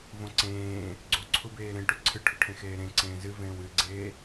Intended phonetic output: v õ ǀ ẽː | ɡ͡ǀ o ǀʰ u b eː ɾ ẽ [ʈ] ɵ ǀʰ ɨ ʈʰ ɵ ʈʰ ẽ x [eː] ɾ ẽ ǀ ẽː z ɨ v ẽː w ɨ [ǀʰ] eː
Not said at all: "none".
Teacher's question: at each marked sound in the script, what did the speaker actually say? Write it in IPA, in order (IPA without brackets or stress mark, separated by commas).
ʈ, eː, ɡ͡ǀ